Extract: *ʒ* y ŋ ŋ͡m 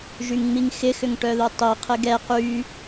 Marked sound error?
no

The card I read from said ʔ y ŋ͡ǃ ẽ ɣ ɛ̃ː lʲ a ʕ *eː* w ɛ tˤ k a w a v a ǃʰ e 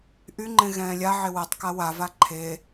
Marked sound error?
yes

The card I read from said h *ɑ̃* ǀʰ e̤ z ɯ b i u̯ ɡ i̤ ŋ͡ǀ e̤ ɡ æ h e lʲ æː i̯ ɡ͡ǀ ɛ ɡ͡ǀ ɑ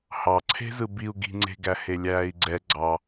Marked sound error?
yes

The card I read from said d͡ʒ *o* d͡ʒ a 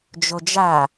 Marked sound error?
no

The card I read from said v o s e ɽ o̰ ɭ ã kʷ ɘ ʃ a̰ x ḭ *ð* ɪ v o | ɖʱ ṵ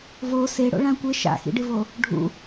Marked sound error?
yes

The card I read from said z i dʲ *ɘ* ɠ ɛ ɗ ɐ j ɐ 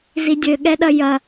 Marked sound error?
no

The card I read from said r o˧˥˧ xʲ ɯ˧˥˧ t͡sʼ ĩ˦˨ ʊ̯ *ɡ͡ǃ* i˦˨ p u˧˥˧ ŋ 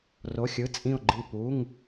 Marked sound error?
no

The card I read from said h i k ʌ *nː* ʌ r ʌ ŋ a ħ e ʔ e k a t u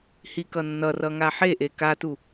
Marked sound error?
no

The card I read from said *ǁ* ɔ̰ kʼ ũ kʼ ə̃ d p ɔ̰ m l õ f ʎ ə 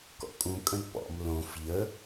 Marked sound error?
yes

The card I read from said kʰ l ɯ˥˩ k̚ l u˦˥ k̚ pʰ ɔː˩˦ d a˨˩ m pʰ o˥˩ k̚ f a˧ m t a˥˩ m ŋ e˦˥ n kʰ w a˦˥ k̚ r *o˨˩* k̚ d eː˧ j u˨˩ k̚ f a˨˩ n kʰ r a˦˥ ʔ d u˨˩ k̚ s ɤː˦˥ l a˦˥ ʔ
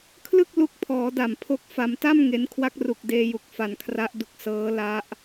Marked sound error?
yes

